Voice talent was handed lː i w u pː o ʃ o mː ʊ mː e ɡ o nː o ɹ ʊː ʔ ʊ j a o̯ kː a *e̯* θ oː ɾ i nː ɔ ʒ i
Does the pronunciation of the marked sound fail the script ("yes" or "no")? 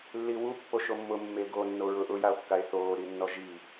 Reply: no